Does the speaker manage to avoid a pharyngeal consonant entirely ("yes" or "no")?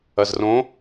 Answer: yes